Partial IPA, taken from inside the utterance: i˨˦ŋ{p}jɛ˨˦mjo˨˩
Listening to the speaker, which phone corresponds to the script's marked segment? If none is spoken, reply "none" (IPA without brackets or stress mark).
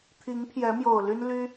pʰ